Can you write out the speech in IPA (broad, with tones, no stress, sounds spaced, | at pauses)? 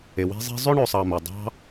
e˩ w e̤˦ zˤ e̤˦ zˤ ø˥ ɳ ɵ˨ sˤ ɑ˨ m ɵ˩ dˤ ɑ̤˦